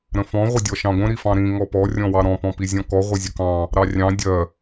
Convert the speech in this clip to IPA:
ɾ ə̃ f ɔ̃ ʁʷ ə dʲ ɔ ʃ ɑ̃ ɡʷ ə̃ ɾ i f ɑ̃ ɾ ĩ ŋ ɔ p ɔ rʲ ɔ̃ w ɑ ɾ ɔ̃ p ɔ̃ p i zʲ ɔ̃ k ɔ ʁʷ ə zʲ ə k ɑ̃ | ɾ ɑ rʲ ɑ̃ dʲ ɜ

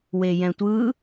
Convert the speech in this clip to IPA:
w e j ɛ̃ tʷ ɯ

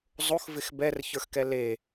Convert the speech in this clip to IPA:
zˤ o x v ɪ x b ɛ r ç ə˞ x k ɛ l e

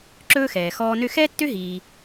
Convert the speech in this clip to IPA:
ǁ ɵː˥ x ɛː˨ x ɔː˦ n ø˥ x ɛː˥ tː ø˥ ɦ iː˨

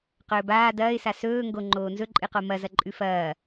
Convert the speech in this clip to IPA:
q ɵː b aː d ɐː ɪ̯ s a s ɵː ŋ ɡ o ŋ͡ǃ oː n z ɵ ǃʼ ɨ q o m ɐ z ɐ ǃʼ ʉ f ɐː

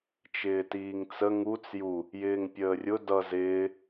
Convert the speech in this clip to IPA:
t͡ʃ ɪː t iː ŋ t͡s ə ŋ u t͡s j u | j ɪː ŋ pʲ əː rʲ ʊ d ʌ z ɪː

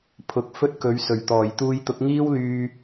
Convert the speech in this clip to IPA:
pʰ ʊ˨˥ k̚ f ɵ˥ t̚ k ɵ˨˥ ɥ s ɵ˨˩ ɥ t̪ ɔː˨˩ j t̪ uː˧ j t̪ ʊ˨˥ k̚ ŋ iː˥ w l yː˧

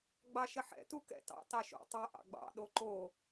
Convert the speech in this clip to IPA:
ɡ͡b ɑ ʃ ə ħ ɛ̰ t u k ɛ̰ t ɑ̰ t ɑ ʃ o̰ tˤ ɛ ʔ ɑ̰ ɡ͡b ɑ̰ ɗ o ǃ o

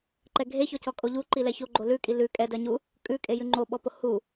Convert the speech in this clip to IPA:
ǃ ɛ ɡʱ e ç ɔ c ɔ kʼ o ʎ u ǃ i l ɛ ç o ɡ͡ǃ o l ʉ kʼ i l ʉ kʼ ɛ d ɜ ɲ u | kʼ ʉ kʼ e j ʉ ŋ͡ǃ o ɓ ɔ p o h u

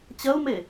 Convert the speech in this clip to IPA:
t͡ɕ ɐ u̯ m e

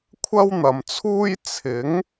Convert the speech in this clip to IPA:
kʷʰ ɐ˥ w n̪ ɐ˨ m t͡sʰ uː˥ j t͡sʰ ɪ˨˥ ŋ

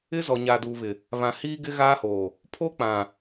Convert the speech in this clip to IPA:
ɪ˦ z ɔ˨ ɲ aː˨ d uː˨ β ɪ˨ | β ã˨ h iː˦ ɡ ɪ˦ ɣ aː˦ h oː˨ | pʰ oː˦ k͡p ã˨

